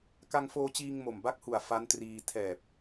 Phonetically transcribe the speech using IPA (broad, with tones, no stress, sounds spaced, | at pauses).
k a˧ ŋ f oː˧ t͡ɕ iː˧ ŋ m o˨˩ m b a˦˥ k̚ h u˨˩ a̯ f a˦˥ n t r iː˧ tʰ ɛː˨˩ p̚